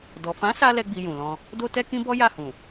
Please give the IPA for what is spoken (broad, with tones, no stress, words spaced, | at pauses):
dɔ˨fã˨˦sa˧ lɛ˦ɡ͡bi˧jũ˨lɔ̃˧ | do˦tɛ˦kĩ˦bɔ˦ ja˦˨hũ˨